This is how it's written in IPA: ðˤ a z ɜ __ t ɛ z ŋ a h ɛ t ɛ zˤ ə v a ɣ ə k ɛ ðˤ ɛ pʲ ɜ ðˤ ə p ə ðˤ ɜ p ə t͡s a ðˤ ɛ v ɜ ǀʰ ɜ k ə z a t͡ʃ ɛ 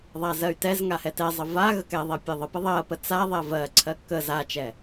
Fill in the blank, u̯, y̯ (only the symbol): y̯